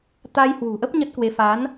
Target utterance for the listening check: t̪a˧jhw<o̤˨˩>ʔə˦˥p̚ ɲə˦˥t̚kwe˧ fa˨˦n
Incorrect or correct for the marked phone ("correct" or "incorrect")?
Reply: incorrect